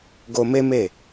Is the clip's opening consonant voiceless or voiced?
voiced